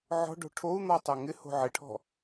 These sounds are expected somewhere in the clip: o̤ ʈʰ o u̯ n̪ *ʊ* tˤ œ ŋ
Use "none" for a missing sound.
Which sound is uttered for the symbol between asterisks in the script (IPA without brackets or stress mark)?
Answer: ɔ